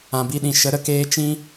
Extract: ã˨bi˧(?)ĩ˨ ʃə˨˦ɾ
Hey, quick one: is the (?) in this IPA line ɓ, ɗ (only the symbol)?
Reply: ɗ